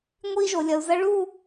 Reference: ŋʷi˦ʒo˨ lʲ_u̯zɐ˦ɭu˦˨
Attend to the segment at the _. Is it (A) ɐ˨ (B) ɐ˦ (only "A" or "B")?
A